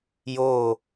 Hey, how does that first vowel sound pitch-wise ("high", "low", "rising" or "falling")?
falling